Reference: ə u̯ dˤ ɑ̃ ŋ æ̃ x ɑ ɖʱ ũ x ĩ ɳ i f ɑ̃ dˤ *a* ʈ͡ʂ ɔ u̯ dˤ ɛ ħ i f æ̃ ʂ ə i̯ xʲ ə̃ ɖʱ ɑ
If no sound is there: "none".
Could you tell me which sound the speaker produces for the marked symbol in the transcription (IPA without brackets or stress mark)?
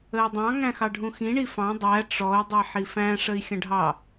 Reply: æ